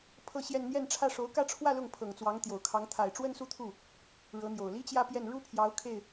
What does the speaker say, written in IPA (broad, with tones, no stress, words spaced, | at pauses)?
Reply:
pʰɤ˥˧ɕjɛ˥˧n n̪jɛ˥˧nʈ͡ʂʰä˥˩ ʂo˧˥ʊ̯kä˥˧ʈ͡ʂʰwä˥˧ lʊ˥˩ŋpʰɤ˨˩ŋt͡swɑ˧˥ŋ t̪jo˨˩ʊ̯kʰɑ˧˥ŋ t̪ʰa˨˩ɪ̯ʈ͡ʂwə˥nsu˥˧t̪ʰu˥˩ | ɻɤ˧˥n̪jo˨˩ʊ̯ li˥ t͡ɕjä˥˧pjɛ˥˩n ɻu˥pʰjɑ˧˥ʊ̯ kʰe˥˩ɪ̯